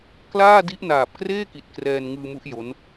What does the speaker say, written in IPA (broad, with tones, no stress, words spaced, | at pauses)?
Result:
klaː˥˩di˦˥ʔ naː˨˩p̚kreː˥˩ki˨˩t̚ krɛː˧nŋɯː˧mu˦˥ʔ jo˦˥n